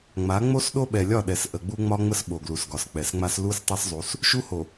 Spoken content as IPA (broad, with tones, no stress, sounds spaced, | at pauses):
ŋ͡m a˨˦ ŋ͡m o˦ s ɗ o˦ ɓ ɛ˨ lʲ ɒ˦˨ ɗ ɛ˨ s ʔ ə˨ ɡ͡b u˦ ŋ͡m ɒ˦ ŋ͡m ə˦ s ɓ o˨ ɡ l u˨ s ɡ ɒ˨ s k͡p ɛ˨ s ŋ͡m a˦ s l u˦ s tˤ ɛ˦ s zˤ u˨˦ s | ʃ u˦ h o˨